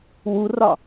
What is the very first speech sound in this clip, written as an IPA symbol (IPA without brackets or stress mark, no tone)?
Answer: w